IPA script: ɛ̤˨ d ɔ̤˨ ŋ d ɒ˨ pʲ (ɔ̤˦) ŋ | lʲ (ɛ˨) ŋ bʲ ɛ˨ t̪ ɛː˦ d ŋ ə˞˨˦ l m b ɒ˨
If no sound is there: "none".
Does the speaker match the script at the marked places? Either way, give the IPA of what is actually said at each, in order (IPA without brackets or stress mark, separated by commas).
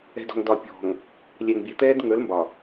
ɔ̤˨, ɛ˨